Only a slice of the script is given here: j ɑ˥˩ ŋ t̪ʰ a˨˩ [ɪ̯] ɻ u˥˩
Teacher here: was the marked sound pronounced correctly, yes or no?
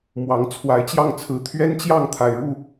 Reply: yes